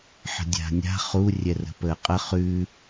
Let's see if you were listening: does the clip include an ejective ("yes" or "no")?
yes